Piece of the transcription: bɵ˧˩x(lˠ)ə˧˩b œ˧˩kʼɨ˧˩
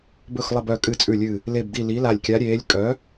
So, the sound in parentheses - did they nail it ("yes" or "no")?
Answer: yes